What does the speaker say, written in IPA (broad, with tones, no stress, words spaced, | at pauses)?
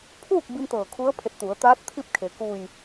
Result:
pʰuː˥˨k̚ bi˧m t̪ɤː˧˩ kʰu˧˥ə̯pʰe˧˩t̚t̪u˩˧ə̯t̪aː˧˥t̚ t̪ʰi˥˨p̚kʰe˩ ku˧˩j